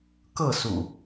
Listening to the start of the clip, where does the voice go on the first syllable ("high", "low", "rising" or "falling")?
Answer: falling